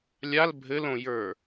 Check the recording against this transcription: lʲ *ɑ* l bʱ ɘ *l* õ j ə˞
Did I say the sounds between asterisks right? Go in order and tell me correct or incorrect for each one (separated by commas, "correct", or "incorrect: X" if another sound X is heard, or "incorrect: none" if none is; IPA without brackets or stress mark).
incorrect: a, correct